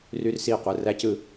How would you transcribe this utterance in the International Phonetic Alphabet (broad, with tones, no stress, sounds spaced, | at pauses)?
r y˦ r s iː˦ qʷ ɯ˩˧˩ r æ˦ c ɯ˦